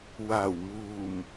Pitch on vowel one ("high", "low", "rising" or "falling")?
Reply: low